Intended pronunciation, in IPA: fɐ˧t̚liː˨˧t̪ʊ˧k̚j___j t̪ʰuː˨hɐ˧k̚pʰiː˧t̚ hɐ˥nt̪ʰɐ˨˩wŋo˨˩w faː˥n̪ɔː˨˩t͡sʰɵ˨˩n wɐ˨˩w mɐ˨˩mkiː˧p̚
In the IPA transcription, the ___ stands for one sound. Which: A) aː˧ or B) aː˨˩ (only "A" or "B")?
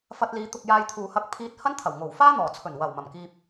A